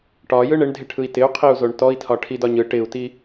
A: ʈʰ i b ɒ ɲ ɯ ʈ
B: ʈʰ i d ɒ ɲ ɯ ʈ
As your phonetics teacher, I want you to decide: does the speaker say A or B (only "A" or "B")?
B